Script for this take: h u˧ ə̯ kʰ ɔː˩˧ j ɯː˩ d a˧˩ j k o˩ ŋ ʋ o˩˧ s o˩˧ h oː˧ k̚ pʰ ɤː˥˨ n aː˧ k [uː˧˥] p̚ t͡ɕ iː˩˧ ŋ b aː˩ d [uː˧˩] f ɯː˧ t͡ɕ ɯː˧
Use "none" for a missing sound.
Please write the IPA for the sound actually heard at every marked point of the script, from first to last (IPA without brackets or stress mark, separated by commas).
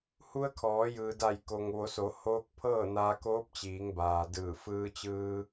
oː˧˥, ɯː˧˩